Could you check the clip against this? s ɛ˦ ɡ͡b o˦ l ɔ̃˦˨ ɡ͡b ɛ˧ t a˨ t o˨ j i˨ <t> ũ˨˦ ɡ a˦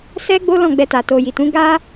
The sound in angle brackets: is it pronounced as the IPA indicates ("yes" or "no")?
yes